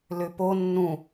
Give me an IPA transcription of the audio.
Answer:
lʏpo nːũ

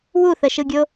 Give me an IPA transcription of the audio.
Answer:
wuθəʃɯɡʲo

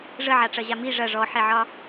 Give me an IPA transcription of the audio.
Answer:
ʐəʕaʈ͡ʂɐʑa mi ʐɐ ʐɔħeʕɒ

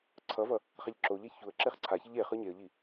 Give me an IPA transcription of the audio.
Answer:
ǀʰʌvʌ | χaʎǁoʎɛ çuə̯ ǁeχǀʰaçeʎ e χɯɲeə̯ʎi

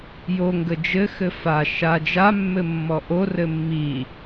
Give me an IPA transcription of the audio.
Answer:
jo ŋɡəd͡ʒɘxɘ fa ʃa d͡ʒamːɘ mːɔʔorɘ mːi

